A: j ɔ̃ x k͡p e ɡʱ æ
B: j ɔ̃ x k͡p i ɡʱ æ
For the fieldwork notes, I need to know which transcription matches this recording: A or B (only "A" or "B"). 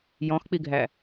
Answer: B